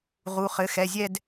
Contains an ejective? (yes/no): no